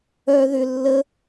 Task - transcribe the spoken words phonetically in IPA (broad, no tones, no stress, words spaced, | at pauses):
œ ðʏ lːə